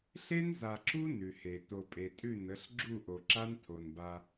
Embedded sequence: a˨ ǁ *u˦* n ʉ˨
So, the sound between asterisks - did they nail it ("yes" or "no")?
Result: yes